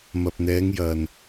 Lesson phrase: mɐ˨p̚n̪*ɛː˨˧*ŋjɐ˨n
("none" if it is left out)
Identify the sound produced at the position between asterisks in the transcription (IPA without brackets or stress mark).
ɛː˨˧